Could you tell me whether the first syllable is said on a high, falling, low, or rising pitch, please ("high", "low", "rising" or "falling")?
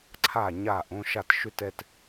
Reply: falling